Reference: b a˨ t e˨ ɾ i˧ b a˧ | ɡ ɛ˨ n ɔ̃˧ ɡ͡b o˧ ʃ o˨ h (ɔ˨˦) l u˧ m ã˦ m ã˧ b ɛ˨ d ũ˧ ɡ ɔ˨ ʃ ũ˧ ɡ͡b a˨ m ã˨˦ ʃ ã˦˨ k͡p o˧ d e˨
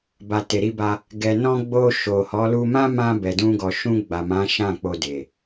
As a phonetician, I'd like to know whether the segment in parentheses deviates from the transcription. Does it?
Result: no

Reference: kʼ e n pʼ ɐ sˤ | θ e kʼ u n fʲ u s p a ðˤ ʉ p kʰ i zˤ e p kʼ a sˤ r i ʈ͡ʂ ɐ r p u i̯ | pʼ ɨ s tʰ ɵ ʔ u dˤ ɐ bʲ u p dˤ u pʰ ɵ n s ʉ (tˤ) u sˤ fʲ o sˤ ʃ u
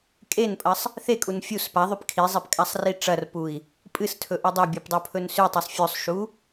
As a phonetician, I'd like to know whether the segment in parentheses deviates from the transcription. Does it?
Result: no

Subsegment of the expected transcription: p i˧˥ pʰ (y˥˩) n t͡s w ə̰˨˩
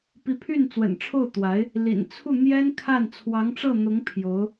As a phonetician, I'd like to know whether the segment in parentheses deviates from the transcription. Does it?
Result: no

